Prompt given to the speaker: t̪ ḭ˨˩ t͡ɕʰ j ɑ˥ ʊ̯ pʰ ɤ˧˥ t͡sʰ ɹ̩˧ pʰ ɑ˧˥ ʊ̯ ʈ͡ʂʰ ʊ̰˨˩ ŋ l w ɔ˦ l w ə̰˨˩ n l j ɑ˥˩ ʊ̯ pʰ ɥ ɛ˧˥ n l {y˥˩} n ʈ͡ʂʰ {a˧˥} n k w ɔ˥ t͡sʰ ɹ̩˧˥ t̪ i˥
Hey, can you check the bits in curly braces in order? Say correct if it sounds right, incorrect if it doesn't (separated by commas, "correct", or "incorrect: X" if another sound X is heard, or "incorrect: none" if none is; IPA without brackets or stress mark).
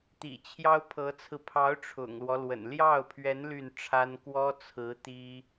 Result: correct, incorrect: a˥